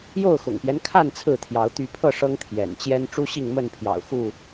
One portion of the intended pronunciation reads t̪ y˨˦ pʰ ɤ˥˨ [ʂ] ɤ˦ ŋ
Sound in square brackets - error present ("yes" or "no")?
no